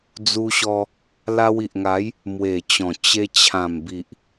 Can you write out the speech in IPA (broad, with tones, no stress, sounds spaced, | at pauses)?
d͡z u˧ ɕ ɔ˧ | l a˧ w i˨ ʔ ŋ a˨˦ j | m w e˨˩ t͡ɕ ɔ̃˨˩ t͡ɕ e˧ t͡ɕʰ ã˨˩ m b i˨ ʔ